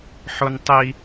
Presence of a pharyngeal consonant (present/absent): present